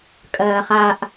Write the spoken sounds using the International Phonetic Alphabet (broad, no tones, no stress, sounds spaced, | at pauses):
kʼ ɜː χ a ʔ